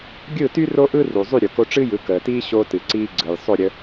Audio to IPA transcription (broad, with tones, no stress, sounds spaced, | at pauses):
ɡʲ ɯ˥˩ t y˥ r o˥ ʔ ɯ˥ r u˩ zˤ y˥˩ ɾʲ o˩ k o˧ ʈ͡ʂ ɨ˥ j ɯ˩˥ k əː˩ t iː˥ ɕ o˧ t ɨ˩ ǀ iː˧ ɡ͡ǀ ɯ˩ j sˤ o˥˩ ɾʲ ə˧